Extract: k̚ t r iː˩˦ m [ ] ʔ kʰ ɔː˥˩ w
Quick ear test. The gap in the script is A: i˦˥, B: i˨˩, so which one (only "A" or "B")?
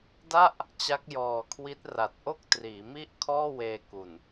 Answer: A